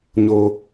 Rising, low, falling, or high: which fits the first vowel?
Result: low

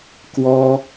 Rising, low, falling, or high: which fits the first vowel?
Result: high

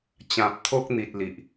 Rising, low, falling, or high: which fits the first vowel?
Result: low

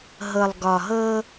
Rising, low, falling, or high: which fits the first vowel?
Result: low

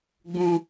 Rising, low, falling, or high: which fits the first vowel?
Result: high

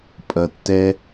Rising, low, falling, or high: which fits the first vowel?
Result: low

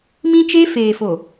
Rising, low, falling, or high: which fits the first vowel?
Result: high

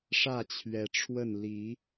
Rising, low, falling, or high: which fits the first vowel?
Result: falling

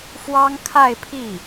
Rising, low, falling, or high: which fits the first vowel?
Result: high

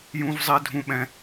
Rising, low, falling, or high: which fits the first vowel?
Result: high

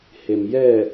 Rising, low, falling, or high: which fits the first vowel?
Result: low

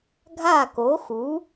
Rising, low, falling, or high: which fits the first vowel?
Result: falling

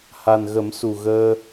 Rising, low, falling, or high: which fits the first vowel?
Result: low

